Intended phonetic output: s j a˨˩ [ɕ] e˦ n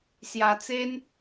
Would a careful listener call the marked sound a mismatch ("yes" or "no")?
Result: yes